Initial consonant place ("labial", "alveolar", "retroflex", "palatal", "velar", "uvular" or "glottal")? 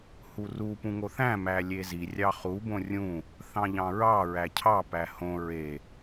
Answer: glottal